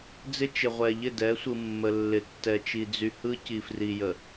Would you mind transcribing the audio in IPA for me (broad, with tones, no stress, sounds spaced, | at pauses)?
d͡z ɪ˦ t͡ʃ ɪ˨ ʁʷ ɛ˨ ʎ ɪ˦˨ d ɛ˨˦ sʷ ɯ˨ mː ə˨ lː ɪ˨ tː ɛ˨ t͡ʃ i˨ d͡z y˨ h ɯ˦ c i˨ f r i˨ j ə˨